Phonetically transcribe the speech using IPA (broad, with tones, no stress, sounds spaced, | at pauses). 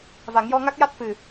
v a˨˩˦ ŋ j ɔ˧ ŋ a˦˥ k̚ j a˦˥ t̚ f ɨ˨˩